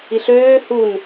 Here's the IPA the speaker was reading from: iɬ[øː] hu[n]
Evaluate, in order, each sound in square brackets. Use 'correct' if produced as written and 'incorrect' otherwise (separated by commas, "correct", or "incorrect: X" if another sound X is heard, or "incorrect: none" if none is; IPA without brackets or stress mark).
correct, correct